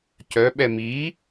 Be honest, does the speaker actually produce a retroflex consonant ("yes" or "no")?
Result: no